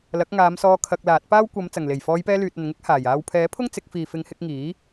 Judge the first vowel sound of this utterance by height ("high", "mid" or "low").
low